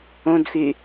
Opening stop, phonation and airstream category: plain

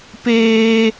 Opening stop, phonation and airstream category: plain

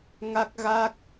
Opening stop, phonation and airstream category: plain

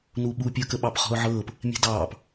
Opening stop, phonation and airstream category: implosive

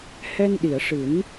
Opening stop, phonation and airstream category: implosive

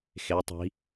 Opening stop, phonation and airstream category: plain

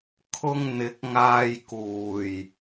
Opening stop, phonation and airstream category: aspirated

